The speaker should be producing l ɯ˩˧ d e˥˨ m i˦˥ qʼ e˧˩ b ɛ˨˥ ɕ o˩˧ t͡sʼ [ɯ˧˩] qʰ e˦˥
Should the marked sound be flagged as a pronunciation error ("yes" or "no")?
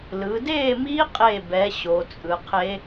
yes